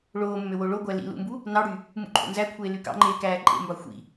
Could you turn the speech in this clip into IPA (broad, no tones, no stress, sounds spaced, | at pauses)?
ɭ oː mː ø w o ɭ o ɡʷ æ l ḭ l ṵ m b u | n ɑ ɽ y | m ṵ ǃʰ o̰ n z æ kʷʰ eː l y k ɑ̰ ŋ͡ǃ eː k æː ǃʼ ḛ m b ɑ xʷ ḭ